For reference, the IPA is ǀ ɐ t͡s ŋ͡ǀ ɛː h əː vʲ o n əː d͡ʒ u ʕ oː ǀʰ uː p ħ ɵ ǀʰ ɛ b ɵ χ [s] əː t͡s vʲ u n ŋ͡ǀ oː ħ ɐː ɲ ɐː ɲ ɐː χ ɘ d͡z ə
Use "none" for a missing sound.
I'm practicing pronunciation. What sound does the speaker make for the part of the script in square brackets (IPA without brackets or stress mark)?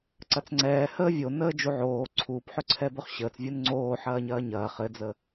ɕ